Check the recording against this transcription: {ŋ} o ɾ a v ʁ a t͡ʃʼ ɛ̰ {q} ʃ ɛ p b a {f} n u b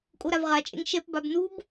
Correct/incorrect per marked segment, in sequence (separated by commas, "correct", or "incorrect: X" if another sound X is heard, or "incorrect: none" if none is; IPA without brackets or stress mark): incorrect: kʼ, incorrect: ŋ, incorrect: b